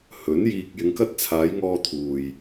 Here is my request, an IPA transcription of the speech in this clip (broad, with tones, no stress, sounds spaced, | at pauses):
h ɵ˨˥ n j iː˧ k̚ j ɪ˨˧ ŋ k ɐ˧ t̚ t͡sʰ aː˨˧ j ŋ ɔː˧ t̪ʰ uː˨ j